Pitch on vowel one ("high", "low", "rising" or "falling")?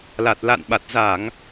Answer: low